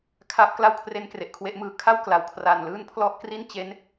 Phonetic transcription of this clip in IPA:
kʰ a˦˥ p̚ k l a˥˩ w kʰ r e˦˥ n k r e˨˩ ʔ kʰ w e˦˥ ʔ m ɯː˧ kʰ a˥˩ w k l a˩˦ w kʰ r aː˨˩ n l ɯː˥˩ n pʰ l ɔ˥˩ ʔ k r i˥˩ n t͡ɕ e˦˥ n

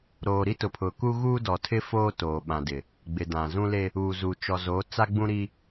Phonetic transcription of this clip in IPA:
ɾ oː˨ ɾ i˦ t ʊ˨ pʰ ʊ˨ k u˦ ɣ uː˦ d ɔ˨ tʰ ɪ˦ f oː˦ t oː˨ ɓ ã˨ d ɪ˨ | ɡ͡b ɪ˨ d ã˨ z ũ˦ l e˦ | uː˨ z uː˨ t͡ʃ ɔ˨ z o˨˦ t͡s a˦ ɡ͡b ũ˦ ɾ i˦

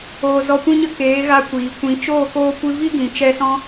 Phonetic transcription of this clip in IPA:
oː˧ z ɔ˧ kʷ ĩ˦ ɲ ə˦ k eː˨˦ ɣ a˧ kʷ iː˨ kʷ ĩ˨˦ t͡ʃ oː˦˨ k oː˧ kʷ ɨ˧ v i˦ ɡ ĩ˨ t͡ʃ ɛ˧ s ɔ̃˧

